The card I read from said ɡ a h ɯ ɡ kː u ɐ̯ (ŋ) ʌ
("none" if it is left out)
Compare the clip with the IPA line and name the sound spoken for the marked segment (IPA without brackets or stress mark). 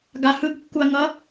ŋ